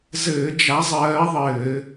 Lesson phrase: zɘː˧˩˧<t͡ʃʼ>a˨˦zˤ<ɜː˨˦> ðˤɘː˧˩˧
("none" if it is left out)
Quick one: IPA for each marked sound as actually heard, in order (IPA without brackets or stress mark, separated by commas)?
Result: d͡ʒ, ɜː˨˦